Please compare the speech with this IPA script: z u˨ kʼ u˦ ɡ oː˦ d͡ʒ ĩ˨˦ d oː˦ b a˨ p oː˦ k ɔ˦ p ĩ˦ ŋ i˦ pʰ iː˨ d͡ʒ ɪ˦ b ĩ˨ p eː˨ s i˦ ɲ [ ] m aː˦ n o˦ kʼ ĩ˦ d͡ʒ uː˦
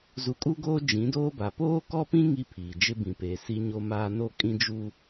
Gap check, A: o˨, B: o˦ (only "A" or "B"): B